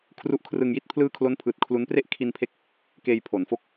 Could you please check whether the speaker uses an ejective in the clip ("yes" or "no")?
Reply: no